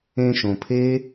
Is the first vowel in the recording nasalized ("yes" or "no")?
yes